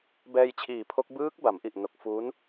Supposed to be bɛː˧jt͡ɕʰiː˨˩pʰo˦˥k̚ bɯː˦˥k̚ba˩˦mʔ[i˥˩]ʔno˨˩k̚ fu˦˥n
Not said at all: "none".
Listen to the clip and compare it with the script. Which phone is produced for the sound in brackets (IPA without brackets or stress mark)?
i˨˩